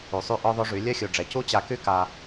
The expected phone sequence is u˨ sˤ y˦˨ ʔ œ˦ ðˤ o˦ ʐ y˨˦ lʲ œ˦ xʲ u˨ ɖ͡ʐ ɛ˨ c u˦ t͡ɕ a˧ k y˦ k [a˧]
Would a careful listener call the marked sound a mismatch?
no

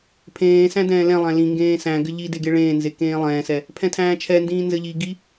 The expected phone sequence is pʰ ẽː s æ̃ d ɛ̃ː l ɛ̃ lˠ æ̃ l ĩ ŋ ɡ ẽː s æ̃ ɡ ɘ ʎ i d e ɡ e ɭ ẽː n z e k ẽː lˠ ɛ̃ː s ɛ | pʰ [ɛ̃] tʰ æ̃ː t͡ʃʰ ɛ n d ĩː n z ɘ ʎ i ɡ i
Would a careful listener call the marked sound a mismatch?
no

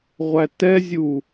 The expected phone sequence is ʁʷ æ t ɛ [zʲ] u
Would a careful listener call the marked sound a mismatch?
no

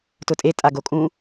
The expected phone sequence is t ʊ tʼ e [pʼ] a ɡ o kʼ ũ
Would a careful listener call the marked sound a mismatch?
yes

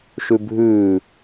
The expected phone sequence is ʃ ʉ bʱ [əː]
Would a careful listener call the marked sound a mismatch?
yes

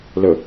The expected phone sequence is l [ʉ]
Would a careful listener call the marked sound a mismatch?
yes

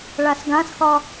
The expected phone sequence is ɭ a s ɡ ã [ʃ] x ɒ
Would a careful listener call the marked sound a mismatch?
yes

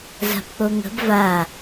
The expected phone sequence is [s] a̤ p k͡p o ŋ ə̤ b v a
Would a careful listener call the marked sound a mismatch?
yes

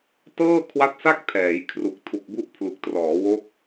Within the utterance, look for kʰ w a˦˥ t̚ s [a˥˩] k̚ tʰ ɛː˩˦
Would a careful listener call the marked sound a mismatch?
no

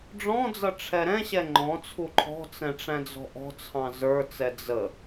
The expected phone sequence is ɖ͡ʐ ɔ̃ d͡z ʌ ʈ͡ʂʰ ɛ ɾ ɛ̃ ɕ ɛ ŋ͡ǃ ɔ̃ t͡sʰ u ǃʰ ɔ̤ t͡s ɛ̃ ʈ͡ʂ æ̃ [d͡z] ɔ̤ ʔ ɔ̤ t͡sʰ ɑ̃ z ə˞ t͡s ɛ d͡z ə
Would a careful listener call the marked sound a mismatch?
no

